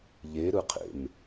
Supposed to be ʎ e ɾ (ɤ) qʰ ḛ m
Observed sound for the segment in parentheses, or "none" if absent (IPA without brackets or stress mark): ɯ